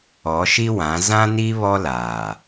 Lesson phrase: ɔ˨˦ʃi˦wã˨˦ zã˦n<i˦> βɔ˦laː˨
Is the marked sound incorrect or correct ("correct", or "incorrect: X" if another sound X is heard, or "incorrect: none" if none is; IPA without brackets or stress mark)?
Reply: correct